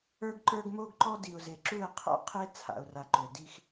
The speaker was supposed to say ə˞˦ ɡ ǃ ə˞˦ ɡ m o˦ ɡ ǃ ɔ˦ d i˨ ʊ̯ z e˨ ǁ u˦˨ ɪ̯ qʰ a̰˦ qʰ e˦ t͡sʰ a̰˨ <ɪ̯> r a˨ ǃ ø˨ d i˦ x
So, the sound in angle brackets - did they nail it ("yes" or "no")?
no